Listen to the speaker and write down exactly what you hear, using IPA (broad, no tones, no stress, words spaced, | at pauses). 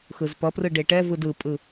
xɯzpʌprɯ ɖeʈɛvɯd ɯpʼɯ